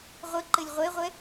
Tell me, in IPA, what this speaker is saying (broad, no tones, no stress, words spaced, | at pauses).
ʁʷə ǃɘlʲʁʷeʁʷɛ